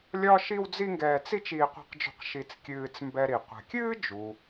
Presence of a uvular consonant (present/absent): present